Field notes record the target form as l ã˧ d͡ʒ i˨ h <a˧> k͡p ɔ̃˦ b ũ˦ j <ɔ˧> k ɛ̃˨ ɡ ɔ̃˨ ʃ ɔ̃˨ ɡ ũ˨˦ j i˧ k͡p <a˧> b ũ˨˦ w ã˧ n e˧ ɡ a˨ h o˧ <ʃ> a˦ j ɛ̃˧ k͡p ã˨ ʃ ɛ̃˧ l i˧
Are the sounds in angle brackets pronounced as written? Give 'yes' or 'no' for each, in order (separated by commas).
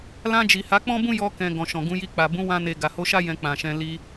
no, yes, no, yes